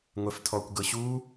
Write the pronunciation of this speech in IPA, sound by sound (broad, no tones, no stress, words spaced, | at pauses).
ŋʷɛftʰɔkʷ ɡɤɕu